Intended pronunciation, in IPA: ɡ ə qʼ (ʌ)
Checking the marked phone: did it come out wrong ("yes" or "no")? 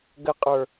yes